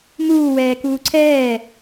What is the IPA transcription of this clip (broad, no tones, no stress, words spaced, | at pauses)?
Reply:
muːwɛː kuːǀʰɛː